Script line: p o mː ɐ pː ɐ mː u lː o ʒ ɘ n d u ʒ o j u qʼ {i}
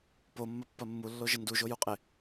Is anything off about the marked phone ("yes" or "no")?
yes